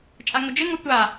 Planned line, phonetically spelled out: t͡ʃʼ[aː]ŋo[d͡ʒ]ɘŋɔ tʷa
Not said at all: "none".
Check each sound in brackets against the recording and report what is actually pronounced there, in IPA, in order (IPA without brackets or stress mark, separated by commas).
a, d͡ʒ